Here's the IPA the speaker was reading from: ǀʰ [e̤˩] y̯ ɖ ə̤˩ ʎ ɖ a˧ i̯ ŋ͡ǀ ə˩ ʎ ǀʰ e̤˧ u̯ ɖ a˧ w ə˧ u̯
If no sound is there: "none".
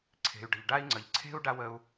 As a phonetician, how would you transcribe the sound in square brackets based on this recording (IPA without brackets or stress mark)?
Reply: e̤˩